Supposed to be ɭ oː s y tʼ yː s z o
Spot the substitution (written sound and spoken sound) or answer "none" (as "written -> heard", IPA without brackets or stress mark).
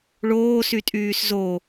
none